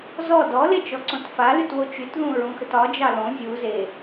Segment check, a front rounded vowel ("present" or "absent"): present